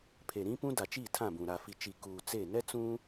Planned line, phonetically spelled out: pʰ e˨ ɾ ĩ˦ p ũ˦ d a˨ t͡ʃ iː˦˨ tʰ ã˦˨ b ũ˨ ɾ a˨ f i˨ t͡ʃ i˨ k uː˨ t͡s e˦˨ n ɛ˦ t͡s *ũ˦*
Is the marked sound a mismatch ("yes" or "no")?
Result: no